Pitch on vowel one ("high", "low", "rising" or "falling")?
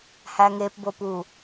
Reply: low